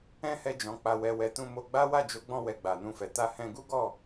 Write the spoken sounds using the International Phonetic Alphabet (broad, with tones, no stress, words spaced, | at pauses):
ɛ̃˦hɛ˧d͡ʒɔ̃˨ k͡pa˨wɛ˨wɛ˨ tũ˧mo˧ɡ͡ba˦ wa˦˨d͡ʒo˨˦ɡ͡bɔ̃˧ wɛ˧ɡ͡ba˨nũ˧fɛ˨ ta˧hɛ̃˧ ɡu˦ɡɔ˦˨